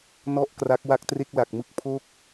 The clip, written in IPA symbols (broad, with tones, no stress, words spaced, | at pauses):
nɔ˥˩ʔkra˦˥k̚ wa˥˩k̚tre˥˩k̚la˨˩k̚mɯ˥˩k̚ pʰo˥˩k̚